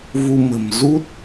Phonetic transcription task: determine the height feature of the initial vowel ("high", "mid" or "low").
high